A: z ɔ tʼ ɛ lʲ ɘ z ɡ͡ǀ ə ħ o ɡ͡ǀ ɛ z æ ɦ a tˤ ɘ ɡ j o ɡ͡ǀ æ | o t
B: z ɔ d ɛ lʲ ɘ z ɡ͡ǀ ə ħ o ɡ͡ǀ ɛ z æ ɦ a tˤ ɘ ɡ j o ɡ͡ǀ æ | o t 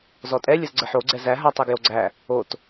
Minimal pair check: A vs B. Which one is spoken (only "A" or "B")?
A